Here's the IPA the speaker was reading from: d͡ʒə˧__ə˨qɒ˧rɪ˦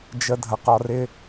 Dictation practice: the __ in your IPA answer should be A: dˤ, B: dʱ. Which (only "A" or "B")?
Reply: B